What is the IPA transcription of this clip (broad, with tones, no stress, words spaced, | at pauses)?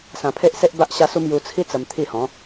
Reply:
sã˧pʰe˦ʔse˦ʔba˦ʔ ɕa˦su˦m ju˧t͡sʰi˦ t͡sə˧mt̪ʰi˥˧hɔ̃˨˦